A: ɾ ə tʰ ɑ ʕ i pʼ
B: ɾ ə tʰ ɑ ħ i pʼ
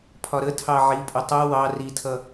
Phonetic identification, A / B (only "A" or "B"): A